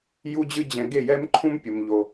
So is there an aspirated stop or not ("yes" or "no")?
yes